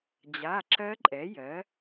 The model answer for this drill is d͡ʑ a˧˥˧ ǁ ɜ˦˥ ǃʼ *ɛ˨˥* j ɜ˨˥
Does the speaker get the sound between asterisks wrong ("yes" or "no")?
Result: no